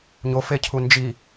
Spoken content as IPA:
ɲ o f e cʰ u n d͡ʒ i

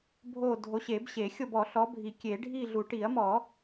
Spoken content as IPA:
bʱ o˦˨ dʱ o˨˦ ɕ e˨˩˦ b ɕ e˨˩˦ xʲ o˦˨ b ɔ˨˩˦ ɬ ɔ˨˦ bʱ i˨˩˦ kʲ e˨˩˦ ɖʱ i˦˨ ɮ u˨˩˦ ʈ i˨˩˦ ɐ̯ m ɔ˨˩˦

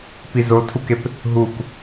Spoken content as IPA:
p i z o tʰ u k e p | ɦ u k

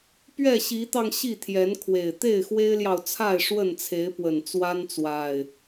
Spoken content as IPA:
p ɥ ɛ˥˨ ɕ i˨˦ t̪ ɑ˧ ŋ ɕ i˥˨ t̪ʰ j ɛ˨˦ n kʰ w e˨˩ ɪ̯ t̪ e˥˨ ɪ̯ x w e˦ ɪ̯ l j ɑ˨ ʊ̯ t͡sʰ a˥˨ ɪ̯ ʂ w ə˥˨ n t͡sʰ e˨˦ ɪ̯ p w ə˨˩ n t͡s w a˦ n t͡s w a˨˩ ɪ̯

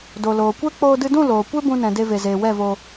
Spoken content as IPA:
d o˨ l oː˨ kʷ ɛ˦ k͡p oː˧ d ɨ˧ d ũ˦˨ l oː˨ kʷ e˦ b ũ˧ n ɛ̃˨ d e˧ v e˨ z eː˨ w ɛ˦˨ v oː˧

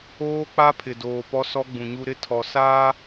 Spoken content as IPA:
oː˦ k͡p a˦ pʰ ɪ˨ d oː˨ p ɔ˦ s ɔ˦ ɡ͡b ũ˨ ɲ u˦ ɾ ɪ˦ tʰ ɔ˨ s aː˦

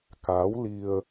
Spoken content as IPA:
k a˨˦ w l i˧ ə̯

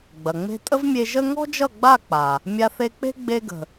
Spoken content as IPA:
ɡ͡b ɐ˨ ŋ͡m e̤˦ tʼ ə˦ v mʲ e˧ ʒ ə˦ ŋ ɔ̤˦ d͡ʒ ʌ˦˨ ɡ͡b a˦˨ k͡p a˨ | mʲ a˧ θ e˧ k͡p e̤˦ ɡ͡b e˧ ɡ ə̤˨

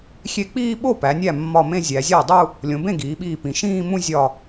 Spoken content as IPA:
xʲ e˧˩ k͡p iː˥˧ ɓ o˥˩ p æ˩˧ nʲ æ˥˩ mː ɒ˧˩ m ẽ˥˧ zʲ æ˩˧ zʲ æ˥˩ dˤ u˥˧ | lʲ õ˩˧ b ẽ˥˩ ɡ iː˩˧ ɓ iː˧˩ p ĩ˩˧ ʃ ĩː˥˧ m ũ˥˧ zʲ ɒ˧˩

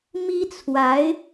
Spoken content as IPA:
m i˥ t͡sʰ w a˧˥ ɪ̯

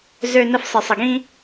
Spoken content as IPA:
z ø˦ n ə˦ f sˤ ɪ˧ sˤ ə˧ ɡ ĩ˦

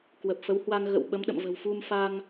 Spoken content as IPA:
k w ə˨˩ p̚ f ə˨˦ w h w a˧ ŋ ɣ ə̰˧˨ w ɓ ə˨˦ m ɗ ə̰˧˨ m v ə̤˨˩ w f u˧ m f a˧ ŋ

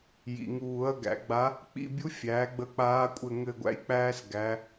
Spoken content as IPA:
j ḭ˩ ŋ uː˨˩˦ ɐ̯ ɡ æ̰˨˩˦ ɡ͡b a˧˥ | k͡p ḭ˦˨ bʲ u˧˥ fʲ æː˩˥ ɡ͡b ə˦˨ k͡p aː˧˥ kʷʼ ɘ˦˨ ŋ ɘ˦˨ ɡʷ æ̰˧˥ j k͡p æː˥ s ɡ æ˧˥

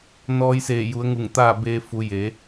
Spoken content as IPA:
n ɔː˧ j s eː˧˩ j u˩˧ ə̯ ŋ u˧˩ ŋ t̪ aː˥˨ b eː˧ f u˩˧ j e˩˧

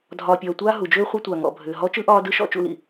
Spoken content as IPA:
dʱ ɒː˨ pʲ ɒː˨ tʷ aː˥ ɦ u˩ d͡ʒ ʏː˥ χʷ i˦ tʷ a˩ ŋ ɔ̰˩ bʱ ʏː˩ ɦ ɔ˦ t͡ʃ ɯ˥ ʔ ɒː˦ d ɯ˦ ʃ ɔ̰˦ t͡ʃ ṵ˦ l ḭ˨

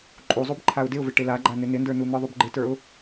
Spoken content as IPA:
ǃʼ u zˤ u b ǃʰ a ʊ̯ d ɪ ʊ̯ v ɪ ʈ ɪ l a ɡ͡ǃ a n ɪ n ɪ n d ə˞ n u n̪ ə˞ ðˤ u b ɡ͡ǃ ɪ t ə˞ ʊ̯

